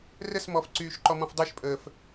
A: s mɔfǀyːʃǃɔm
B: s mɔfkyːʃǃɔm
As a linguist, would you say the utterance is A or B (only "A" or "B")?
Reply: A